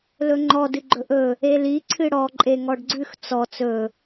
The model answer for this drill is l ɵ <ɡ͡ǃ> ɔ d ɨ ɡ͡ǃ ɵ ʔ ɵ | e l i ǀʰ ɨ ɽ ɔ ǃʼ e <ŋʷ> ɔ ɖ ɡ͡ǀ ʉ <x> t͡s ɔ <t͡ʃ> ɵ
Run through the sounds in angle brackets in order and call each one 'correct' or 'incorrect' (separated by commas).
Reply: incorrect, incorrect, correct, incorrect